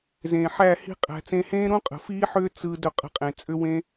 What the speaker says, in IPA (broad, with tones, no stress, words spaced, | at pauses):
zẽː˨ħæ˦˨ hi̤˦qʼæ̤˧ t͡sẽ˧hẽː˦ɾũ˦ qʼə̤˨fiː˦ħʏː˦ t͡sɯ˧ dɵ˧qʼə̤˧qʼẽ˨ t͡sʼʏ˦wẽ˦